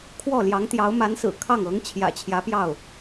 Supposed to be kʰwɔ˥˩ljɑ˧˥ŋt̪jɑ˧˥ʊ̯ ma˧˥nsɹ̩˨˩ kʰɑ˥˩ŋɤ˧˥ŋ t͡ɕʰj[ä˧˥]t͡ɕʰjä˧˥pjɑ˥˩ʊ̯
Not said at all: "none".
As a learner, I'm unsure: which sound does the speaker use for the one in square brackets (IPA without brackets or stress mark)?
ä̰˨˩